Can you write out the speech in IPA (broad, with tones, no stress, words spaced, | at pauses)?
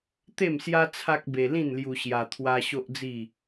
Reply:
t̪e˥˧msja˦ t͡sʰa˦k̚be˧ lĩ˥˧nlju˧ɕja˧ t̪ʰwa˦ɕo˦ʔd͡zi˥˧